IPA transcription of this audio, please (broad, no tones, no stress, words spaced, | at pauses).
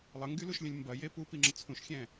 lˠəŋɡyluʃlʲə̃lʲ mbɐje pupiŋ͡ǁə t͡sʰũʃxʲɛ̃